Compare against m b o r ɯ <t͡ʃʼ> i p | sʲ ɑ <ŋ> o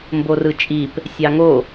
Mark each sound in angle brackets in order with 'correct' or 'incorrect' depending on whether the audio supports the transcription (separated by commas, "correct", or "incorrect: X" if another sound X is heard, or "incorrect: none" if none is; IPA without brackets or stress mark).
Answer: correct, correct